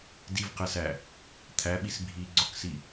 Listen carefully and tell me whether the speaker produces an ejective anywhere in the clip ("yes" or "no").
no